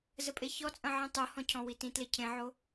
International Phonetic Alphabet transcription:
z ə pʼ e ç ɔ t͡sʼ ɐ̃ ʕ ĩ tˤ o h ɔ̃ cʰ ɔ̃ w i t ĩ t l e cʰ ẽ ʕ o

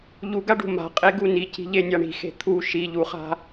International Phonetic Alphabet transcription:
ʎ u ɡ a ɖ ṳ m a̤ qʼ e ɡ u n i c i̤ ʎ e nʲ a ɳ i̤ x e̤ t̪ʰ u ʃ i ʎ u χ a̤

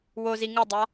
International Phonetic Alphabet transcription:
w o z i ŋ ɯ dˤ a

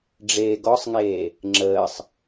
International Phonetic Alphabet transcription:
ɖ͡ʐ eː ɡ ɔ sˤ ŋ eː | ŋ͡ǁ əː sˤ

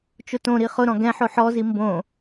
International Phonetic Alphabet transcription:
t͡ʃ ʊ t õ ɾ i χ ʊ ɾ ɔ̃ ɡ ɛ̃ ħ o ħ ɔ z i m b õ

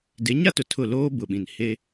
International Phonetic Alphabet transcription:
d e˨˦ ɲ a˦ t ʊ˨ tʰ ʊ˦˨ l oː˦ b ʊ˨ ɓ ĩ˨ n h e˦

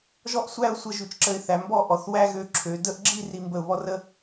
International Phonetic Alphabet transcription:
ʒ ɔ˥˧ ʔ sʷ æ˥˧ ʊ̯ sʷ ə˧ ʒ ʉ˩˧ t͡ʃ ǁ ə˧ ɪ̯ θ æ˩˧ m b ɔ˥˧ ʔ ɔ˩˧ θ w æ˥ ɣ ø˧ ǁʰ ø˩˧ d ə˥˧ ʔ ɡ͡ǁ i˥˧ r i˧ m b ə˧˩ ʊ̯ β ɔ˥ r ə˥

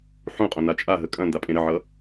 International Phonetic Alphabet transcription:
ħ ũ qʼ õ n a t͡ʃʼ a ɦ ə kʼ ɐ̃ n d a pʼ ẽ ɾ ə ʕ ʌ

